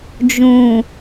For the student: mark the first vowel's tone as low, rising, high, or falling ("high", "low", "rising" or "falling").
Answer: low